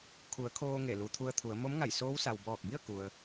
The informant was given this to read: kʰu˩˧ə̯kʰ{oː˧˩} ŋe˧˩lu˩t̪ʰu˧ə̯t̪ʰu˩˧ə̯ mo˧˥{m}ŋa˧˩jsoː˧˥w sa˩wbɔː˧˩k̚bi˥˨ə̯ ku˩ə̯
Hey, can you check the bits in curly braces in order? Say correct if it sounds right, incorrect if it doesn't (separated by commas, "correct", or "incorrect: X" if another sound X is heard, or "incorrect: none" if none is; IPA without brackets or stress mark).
incorrect: oː˧, correct